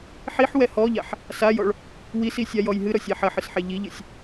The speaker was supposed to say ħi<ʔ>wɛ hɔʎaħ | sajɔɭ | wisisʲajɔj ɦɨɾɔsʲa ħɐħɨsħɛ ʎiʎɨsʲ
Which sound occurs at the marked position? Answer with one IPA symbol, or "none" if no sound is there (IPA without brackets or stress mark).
ħ